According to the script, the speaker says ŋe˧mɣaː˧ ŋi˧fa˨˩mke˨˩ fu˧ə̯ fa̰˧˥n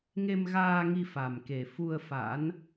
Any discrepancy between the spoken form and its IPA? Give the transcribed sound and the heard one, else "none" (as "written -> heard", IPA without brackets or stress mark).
none